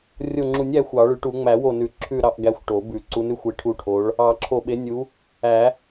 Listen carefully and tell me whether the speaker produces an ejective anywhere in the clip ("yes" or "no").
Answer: no